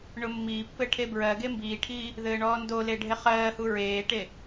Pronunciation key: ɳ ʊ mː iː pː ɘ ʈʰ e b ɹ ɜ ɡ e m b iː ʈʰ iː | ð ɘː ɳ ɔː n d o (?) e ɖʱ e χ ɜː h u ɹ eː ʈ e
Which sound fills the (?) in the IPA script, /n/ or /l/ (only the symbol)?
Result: l